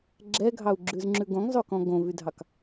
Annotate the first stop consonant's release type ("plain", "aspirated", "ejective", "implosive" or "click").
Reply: click